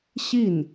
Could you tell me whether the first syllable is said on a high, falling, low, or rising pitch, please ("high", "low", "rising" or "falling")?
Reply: falling